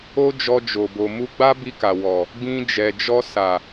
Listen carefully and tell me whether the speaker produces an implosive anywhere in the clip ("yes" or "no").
no